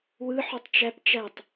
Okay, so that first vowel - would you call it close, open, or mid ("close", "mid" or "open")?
close